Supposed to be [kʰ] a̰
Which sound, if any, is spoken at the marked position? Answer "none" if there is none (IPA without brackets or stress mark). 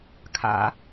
kʰ